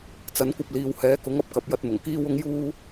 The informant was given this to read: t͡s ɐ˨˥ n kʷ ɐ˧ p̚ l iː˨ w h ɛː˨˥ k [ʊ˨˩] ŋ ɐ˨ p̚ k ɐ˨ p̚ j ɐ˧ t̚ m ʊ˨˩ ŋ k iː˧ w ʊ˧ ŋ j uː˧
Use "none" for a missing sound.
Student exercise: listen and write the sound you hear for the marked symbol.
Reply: ʊ˨˥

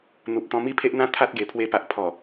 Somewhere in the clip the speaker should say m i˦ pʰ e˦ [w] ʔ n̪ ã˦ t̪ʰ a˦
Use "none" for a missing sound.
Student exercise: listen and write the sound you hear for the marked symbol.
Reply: none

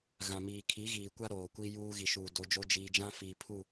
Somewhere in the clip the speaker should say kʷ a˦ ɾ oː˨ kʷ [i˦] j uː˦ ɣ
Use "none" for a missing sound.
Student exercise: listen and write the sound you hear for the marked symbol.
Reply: i˦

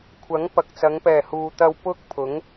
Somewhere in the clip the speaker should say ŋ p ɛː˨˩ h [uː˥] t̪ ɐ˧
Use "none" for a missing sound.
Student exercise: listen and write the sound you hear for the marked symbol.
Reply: uː˨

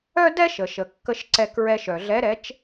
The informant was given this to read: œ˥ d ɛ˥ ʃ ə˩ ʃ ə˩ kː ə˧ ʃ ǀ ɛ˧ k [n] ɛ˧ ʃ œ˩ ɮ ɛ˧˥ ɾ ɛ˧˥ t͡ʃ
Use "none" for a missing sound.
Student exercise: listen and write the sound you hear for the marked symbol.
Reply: ɹ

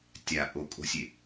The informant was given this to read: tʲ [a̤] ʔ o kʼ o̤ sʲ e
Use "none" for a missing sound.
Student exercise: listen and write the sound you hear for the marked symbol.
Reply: a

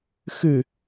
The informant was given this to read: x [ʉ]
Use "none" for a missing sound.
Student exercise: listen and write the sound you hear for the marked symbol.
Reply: ʉ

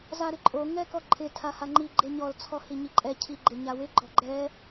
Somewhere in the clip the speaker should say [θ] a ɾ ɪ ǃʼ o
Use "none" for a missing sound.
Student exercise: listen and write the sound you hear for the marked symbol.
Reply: z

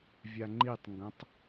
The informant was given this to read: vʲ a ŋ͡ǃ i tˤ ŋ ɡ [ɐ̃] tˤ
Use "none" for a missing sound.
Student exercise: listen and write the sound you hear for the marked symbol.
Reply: ɐ̃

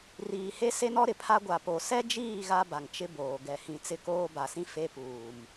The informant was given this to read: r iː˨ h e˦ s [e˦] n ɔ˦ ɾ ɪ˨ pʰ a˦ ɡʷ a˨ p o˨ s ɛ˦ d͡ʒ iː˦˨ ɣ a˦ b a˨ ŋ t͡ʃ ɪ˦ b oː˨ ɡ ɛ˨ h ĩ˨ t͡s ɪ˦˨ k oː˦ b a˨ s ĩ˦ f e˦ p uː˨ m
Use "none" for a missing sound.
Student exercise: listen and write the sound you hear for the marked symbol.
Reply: e˦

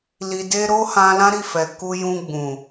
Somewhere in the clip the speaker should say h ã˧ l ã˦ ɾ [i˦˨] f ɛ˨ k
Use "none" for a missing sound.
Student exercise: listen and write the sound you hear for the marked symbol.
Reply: i˦˨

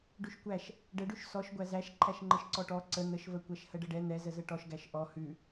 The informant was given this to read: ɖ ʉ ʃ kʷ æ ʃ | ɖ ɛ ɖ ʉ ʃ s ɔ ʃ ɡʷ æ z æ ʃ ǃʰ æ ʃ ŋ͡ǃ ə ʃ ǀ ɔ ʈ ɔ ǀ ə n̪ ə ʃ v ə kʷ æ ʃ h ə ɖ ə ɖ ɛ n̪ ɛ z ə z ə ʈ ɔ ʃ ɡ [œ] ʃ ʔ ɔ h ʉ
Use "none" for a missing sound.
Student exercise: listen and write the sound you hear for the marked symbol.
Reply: æ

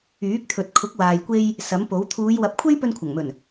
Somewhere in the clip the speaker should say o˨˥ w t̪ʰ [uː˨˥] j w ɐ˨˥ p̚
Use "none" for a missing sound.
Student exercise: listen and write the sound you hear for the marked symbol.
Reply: uː˨˧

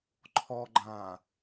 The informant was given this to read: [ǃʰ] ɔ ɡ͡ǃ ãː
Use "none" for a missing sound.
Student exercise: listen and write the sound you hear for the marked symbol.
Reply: ǃʰ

